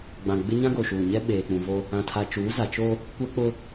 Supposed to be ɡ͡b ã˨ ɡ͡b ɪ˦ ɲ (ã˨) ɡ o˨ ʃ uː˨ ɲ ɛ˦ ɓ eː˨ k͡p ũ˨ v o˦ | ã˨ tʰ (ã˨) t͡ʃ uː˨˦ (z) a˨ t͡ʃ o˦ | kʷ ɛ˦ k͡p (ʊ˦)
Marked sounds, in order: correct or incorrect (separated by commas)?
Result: incorrect, incorrect, correct, correct